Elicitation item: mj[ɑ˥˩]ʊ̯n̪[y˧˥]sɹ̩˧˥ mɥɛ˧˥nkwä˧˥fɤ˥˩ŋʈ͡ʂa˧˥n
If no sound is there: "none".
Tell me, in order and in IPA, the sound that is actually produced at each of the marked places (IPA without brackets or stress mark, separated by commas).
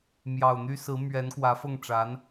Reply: ɑ˨˩, y˥